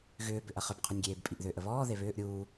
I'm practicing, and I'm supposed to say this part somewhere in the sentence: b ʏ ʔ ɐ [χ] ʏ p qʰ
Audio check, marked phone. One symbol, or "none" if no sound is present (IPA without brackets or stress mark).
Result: χ